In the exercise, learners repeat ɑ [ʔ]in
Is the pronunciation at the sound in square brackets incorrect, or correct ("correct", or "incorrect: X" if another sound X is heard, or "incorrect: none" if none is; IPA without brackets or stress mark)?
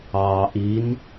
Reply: correct